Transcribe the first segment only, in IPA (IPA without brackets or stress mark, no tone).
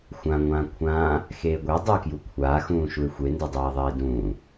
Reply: xʷ